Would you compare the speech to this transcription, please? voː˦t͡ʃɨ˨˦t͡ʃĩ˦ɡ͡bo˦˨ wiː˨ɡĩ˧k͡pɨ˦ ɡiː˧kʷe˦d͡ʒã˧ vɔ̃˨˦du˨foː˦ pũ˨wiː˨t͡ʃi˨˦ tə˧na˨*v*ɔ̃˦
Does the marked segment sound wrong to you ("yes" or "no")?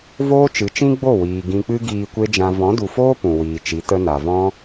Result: no